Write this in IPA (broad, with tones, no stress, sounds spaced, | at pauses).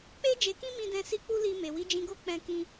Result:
k͡p e˧ d͡ʒ e˨ k ĩ˧ m ĩ˧ d ɛ̃˧ s i˦ k͡p u˦ l i˧ m e˨ w i˨˦ d͡ʒ ĩ˧ ɡ o˦ k͡p ɛ̃˦ k ĩ˦